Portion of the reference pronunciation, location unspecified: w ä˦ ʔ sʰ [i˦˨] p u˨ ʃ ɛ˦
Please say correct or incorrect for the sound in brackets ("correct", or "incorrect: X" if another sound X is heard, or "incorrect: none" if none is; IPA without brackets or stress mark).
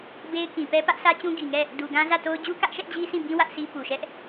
incorrect: i˦